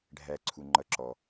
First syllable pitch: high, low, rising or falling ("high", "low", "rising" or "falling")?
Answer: low